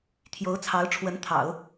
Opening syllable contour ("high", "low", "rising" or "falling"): rising